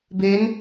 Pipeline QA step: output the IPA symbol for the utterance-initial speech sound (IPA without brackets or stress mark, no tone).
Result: b